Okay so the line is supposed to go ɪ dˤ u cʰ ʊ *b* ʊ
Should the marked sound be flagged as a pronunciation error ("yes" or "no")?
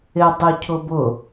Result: no